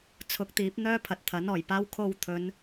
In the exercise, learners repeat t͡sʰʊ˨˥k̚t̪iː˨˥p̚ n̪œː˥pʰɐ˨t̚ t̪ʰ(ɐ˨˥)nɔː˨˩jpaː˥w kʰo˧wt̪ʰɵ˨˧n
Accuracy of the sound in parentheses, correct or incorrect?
correct